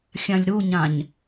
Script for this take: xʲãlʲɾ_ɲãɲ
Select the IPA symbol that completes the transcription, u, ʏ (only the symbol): u